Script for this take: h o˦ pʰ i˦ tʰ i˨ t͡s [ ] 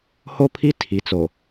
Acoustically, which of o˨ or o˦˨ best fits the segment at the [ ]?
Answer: o˨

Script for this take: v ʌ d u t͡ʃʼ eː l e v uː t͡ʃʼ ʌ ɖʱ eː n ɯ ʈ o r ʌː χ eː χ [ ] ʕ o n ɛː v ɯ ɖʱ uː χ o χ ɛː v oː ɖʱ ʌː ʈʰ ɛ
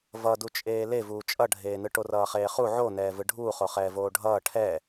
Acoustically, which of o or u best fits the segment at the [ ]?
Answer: u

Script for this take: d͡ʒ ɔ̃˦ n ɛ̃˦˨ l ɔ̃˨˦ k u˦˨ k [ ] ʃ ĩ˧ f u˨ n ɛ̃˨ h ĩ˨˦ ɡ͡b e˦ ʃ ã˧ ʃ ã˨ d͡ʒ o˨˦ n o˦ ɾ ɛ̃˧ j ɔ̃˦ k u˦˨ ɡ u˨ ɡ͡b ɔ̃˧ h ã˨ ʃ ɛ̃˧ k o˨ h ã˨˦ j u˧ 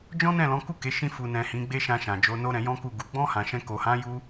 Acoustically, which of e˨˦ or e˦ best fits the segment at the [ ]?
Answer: e˨˦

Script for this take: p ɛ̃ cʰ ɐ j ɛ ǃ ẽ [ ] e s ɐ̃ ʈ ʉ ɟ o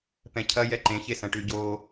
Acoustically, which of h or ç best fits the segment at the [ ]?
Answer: ç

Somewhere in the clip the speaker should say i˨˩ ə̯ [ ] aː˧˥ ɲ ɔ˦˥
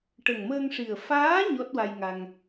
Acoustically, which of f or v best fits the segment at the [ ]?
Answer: f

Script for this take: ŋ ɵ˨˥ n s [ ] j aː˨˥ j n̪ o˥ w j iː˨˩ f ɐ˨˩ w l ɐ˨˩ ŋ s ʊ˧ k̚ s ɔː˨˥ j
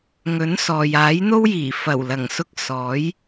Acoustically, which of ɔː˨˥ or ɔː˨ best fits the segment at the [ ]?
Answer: ɔː˨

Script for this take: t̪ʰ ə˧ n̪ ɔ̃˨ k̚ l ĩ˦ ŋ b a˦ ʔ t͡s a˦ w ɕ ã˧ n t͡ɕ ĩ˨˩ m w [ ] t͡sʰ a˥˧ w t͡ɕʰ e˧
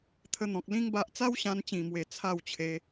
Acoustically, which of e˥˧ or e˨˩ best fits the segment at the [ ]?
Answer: e˨˩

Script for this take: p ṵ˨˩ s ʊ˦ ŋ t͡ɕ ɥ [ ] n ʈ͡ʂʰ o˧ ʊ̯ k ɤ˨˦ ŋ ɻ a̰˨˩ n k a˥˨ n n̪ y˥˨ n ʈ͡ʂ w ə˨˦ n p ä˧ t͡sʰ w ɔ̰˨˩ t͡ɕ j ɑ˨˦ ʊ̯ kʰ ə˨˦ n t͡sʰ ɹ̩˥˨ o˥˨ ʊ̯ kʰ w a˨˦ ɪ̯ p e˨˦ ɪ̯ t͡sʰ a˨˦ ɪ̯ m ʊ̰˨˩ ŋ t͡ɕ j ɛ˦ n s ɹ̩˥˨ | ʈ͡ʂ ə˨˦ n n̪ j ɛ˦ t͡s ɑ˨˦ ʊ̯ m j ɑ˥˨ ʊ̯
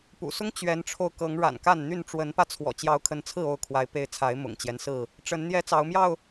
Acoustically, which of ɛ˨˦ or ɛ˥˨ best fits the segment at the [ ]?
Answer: ɛ˨˦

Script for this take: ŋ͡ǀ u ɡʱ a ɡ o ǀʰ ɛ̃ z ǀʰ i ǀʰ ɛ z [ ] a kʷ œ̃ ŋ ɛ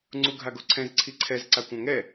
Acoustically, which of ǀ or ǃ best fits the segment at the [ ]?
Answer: ǀ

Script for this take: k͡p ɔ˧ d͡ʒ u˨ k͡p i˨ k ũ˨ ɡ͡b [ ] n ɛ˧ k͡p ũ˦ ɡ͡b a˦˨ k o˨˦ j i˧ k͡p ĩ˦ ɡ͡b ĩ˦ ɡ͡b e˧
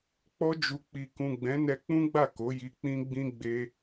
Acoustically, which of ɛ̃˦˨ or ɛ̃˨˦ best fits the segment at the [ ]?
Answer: ɛ̃˨˦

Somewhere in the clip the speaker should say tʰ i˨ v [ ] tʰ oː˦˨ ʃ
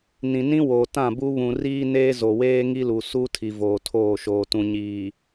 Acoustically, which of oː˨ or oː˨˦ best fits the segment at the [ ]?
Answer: oː˨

